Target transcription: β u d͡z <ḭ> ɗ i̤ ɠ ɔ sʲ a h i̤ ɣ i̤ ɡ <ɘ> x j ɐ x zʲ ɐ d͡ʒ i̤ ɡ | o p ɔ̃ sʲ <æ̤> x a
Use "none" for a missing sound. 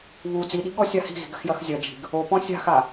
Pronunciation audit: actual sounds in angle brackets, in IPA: i, ɘ, a̤

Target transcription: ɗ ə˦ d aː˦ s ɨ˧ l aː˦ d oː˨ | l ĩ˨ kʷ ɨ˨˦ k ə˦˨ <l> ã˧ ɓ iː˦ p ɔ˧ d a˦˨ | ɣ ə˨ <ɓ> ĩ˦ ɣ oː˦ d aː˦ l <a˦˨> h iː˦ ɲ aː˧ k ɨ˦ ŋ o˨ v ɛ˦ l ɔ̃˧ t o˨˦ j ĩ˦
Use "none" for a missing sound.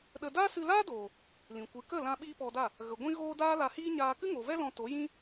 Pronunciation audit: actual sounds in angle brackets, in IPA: l, ɡʷ, a˧

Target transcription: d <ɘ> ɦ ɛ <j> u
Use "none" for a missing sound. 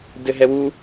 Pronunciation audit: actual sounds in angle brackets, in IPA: ɘ, w

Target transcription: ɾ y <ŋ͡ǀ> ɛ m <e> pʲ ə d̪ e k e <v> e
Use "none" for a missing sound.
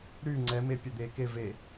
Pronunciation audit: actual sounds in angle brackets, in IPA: ŋ͡ǀ, e, v

